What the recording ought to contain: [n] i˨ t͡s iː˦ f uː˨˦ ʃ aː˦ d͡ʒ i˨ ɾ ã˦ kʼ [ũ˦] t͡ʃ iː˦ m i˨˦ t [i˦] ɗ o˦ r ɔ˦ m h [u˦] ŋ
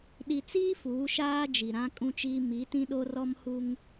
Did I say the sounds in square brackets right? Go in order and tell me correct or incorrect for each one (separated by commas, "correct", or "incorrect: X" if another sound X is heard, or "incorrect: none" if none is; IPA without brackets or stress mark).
incorrect: ɗ, correct, incorrect: ĩ˦, correct